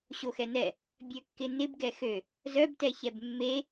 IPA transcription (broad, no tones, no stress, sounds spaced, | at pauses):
ɕ o x ɛ n ɛ | bʲ ø kː ɪ n ɪ b ɡ ɛ x ø | z œ b t ɛ ç ɛ b mː e